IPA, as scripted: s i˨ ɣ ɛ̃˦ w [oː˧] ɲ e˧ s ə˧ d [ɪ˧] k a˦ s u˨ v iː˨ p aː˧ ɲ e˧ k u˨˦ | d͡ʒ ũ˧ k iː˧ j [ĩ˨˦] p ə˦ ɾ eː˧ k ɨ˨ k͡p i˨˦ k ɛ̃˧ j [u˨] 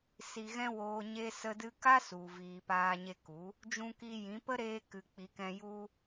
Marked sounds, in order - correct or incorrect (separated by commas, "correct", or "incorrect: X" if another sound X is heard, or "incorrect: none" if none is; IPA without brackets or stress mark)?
correct, incorrect: ɨ˧, correct, incorrect: u˦